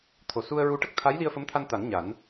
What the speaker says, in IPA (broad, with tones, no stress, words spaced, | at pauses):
t̪ʰo˨˩su˧ə̯ɹu˧˥ ʈə˦˥k̚t̪ʰa˧˥j li˧ə̯fə˧˥mt̪ʰa˧nt̪a˨˩˦n ɲa˨˩˦n